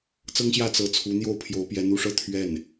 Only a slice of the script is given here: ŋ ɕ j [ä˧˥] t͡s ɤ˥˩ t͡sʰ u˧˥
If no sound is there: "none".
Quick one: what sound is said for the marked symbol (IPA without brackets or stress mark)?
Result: ä˥˧